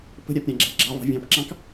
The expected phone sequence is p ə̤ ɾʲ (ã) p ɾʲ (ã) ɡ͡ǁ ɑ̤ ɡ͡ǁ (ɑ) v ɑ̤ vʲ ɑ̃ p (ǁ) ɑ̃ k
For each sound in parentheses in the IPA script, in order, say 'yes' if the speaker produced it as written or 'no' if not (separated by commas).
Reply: no, yes, yes, yes